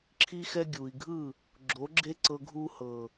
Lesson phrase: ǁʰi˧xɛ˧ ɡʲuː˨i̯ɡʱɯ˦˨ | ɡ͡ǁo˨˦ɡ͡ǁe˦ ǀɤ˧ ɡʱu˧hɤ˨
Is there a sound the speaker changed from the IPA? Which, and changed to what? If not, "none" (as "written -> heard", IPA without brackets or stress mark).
none